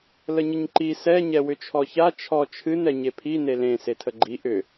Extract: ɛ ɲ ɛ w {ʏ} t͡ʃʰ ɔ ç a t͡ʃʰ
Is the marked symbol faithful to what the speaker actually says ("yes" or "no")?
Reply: yes